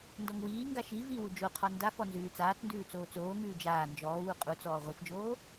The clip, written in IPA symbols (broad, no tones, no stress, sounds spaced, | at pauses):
n d ɔ ŋ w iː ŋ ɡ a ʃ i v i w u d͡ʒ o qʰ ɔ n d a f ɔ n z ʉː t͡s aː t͡s n d ʉː t͡s oː t͡s oː ŋ ʉː d͡ʒ aː n d͡ʒ ɔː w u qʼ u t͡s ɔː ʁʷ i f d͡ʒ oː